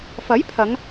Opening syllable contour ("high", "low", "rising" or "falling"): rising